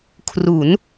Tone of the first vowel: rising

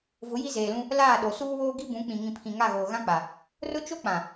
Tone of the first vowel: rising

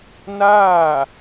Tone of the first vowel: falling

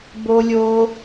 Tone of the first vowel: high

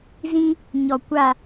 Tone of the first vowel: high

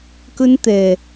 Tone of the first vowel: high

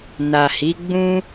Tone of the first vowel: low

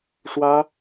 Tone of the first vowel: high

